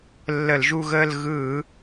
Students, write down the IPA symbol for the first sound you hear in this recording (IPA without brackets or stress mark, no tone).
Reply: lː